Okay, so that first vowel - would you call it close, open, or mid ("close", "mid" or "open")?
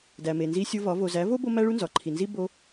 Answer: open